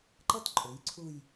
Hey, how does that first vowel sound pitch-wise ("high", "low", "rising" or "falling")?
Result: high